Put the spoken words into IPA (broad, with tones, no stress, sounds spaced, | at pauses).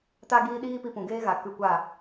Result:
t a˦ ɡ iː˦ ɗ iː˦ p i˧ p ũ˨ ɡ eː˦ ɣ a˨ k ɨ˧ kʷ a˦˨